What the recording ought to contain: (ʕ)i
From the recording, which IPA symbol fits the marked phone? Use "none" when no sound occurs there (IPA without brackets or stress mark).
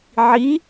ʕ